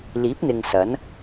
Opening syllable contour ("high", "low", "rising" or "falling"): rising